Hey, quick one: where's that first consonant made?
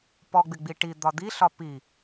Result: lips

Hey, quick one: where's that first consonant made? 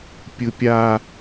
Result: lips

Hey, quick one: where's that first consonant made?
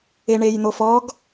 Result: retroflex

